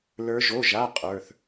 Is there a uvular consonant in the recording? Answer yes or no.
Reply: yes